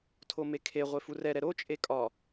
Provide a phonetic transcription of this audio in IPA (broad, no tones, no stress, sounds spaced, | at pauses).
tʰ o m e kʰ e ʁʷ e f u r ɛ ɾ ɛ ɾ o t͡ʃʼ e kʼ ɒ